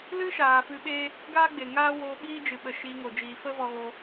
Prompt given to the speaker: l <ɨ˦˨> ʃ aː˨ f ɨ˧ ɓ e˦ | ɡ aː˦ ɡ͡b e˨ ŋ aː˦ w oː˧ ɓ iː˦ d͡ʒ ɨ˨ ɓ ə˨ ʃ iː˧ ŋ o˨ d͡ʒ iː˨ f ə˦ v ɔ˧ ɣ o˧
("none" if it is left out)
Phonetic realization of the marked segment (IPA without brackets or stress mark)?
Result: ɨ˦